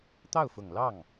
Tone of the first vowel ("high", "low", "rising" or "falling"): falling